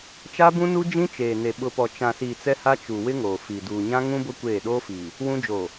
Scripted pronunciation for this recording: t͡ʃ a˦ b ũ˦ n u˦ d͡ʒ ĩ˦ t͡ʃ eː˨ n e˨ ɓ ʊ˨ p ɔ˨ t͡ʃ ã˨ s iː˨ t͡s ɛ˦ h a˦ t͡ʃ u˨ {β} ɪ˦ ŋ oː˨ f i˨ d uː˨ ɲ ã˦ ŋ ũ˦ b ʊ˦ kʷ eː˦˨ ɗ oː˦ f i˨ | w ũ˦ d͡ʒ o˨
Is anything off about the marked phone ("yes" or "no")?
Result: yes